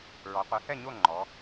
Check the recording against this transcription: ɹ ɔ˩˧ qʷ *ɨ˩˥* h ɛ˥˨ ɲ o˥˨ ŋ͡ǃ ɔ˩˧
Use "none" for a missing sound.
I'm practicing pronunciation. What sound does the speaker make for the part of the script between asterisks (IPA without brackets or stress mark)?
ɨ˩˥